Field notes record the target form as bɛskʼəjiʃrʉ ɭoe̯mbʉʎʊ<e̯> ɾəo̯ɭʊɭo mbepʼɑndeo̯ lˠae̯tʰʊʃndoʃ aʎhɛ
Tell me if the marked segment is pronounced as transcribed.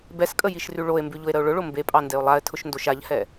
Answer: yes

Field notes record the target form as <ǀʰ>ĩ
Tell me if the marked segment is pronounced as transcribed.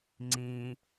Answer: no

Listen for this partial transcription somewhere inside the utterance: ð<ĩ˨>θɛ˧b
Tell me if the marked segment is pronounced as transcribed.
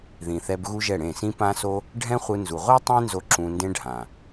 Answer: yes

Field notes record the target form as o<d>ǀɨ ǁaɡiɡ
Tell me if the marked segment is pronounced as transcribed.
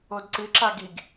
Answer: yes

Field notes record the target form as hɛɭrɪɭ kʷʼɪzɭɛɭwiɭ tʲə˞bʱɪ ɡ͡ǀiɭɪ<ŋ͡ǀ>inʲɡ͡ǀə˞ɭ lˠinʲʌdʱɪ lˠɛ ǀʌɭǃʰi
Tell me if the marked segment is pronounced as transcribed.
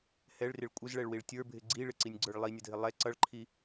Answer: no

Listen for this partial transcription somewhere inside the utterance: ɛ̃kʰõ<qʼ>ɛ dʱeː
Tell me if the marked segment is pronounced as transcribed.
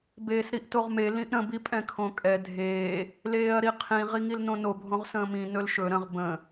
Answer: no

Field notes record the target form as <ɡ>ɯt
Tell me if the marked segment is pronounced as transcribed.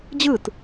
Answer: no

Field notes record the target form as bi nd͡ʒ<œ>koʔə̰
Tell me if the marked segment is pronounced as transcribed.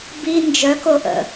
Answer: yes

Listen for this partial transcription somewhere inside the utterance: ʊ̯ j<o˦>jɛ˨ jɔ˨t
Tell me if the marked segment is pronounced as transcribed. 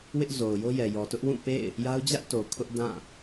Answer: yes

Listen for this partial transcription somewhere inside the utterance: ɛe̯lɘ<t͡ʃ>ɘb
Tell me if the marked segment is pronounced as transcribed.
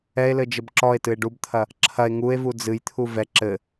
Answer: no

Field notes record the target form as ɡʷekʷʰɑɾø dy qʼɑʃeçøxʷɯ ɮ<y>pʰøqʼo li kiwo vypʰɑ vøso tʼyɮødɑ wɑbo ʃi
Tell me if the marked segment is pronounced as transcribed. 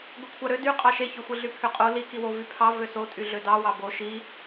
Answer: yes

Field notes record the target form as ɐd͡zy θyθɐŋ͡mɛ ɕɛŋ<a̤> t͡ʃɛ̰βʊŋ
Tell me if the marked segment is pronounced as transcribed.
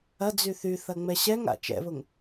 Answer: no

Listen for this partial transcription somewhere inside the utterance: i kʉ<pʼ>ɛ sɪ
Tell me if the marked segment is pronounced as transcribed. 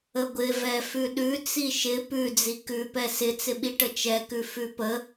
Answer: no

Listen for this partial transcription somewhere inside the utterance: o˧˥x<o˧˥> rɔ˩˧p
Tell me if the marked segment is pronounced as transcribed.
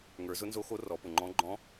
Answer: yes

